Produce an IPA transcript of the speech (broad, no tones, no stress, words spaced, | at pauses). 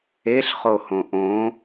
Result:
eɬχo hõʔõ